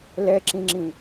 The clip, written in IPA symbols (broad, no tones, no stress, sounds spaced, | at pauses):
l ɛ ǁ ĩ ŋ͡ǁ ĩ